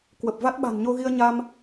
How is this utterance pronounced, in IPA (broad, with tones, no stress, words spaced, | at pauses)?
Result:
kwə˨˩p̚ va˦˥t̚ɓa̤˨˩nɲo˧ɣi˧ə̯ ɲa˧m